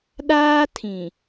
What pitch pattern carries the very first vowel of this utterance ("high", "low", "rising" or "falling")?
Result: high